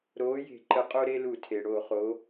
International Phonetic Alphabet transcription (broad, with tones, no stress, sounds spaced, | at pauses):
ɾ oː˨˥ j e̤˧˩˧ ǃ ə˨˥ qʼ o˦ ɾ e˦ l u˧˩˧ tʰ e˩ ɽ o˧˩˧ χ o˩˧